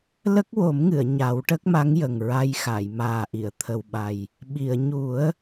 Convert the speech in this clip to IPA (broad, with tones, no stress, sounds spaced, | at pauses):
l ə˦˥ k̚ w o˨˩˦ m ŋ ɨ˨˩˨ ə̯ ɲ a˨˩˦ w ʈ ə˦˥ k̚ m a˧˥ ŋ j ə˨˩ ŋ ɹ a˧ j x a˨˩˨ j m aː˨˩ ʔ i˨˩˨ ə̯ t̪ʰ ə˨˩ w ɓ a˨˩ j | ɓ i˨˩˨ ə̯ ɲ u˨˩˦ ə̯